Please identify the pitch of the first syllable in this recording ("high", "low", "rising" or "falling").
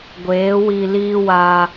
rising